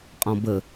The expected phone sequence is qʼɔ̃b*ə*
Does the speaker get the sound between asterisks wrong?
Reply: no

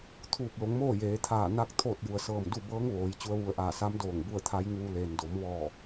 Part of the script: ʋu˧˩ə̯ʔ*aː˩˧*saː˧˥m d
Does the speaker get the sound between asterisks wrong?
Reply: yes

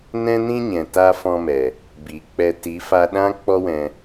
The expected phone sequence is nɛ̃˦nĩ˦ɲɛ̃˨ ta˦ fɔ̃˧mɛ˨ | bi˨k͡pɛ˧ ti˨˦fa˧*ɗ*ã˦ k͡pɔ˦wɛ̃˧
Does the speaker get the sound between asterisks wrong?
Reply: no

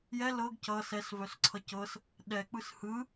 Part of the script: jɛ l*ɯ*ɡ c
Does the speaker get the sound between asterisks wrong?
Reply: yes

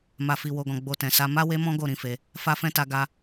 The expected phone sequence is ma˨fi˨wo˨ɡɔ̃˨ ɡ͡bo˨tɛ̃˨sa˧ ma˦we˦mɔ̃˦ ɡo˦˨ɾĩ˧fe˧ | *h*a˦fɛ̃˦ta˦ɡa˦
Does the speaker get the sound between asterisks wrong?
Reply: yes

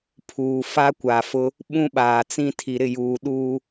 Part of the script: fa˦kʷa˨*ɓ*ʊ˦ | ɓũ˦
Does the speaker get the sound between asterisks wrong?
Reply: yes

